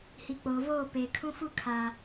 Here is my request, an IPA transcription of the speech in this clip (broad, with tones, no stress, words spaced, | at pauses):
hi˨k͡poː˨voː˦˨peː˨ kʰũ˦ fu˦kʰa˨